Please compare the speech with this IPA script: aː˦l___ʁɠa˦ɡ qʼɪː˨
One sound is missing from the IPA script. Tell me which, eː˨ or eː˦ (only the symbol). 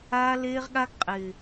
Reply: eː˦